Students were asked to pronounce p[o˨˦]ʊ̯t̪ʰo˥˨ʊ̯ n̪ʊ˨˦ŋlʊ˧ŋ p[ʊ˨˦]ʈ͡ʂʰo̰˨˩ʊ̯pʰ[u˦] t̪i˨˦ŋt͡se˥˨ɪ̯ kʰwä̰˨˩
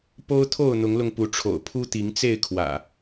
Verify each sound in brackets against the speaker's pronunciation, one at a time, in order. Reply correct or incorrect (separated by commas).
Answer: incorrect, incorrect, correct